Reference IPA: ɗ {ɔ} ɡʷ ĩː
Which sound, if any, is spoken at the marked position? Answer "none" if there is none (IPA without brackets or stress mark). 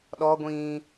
ɔ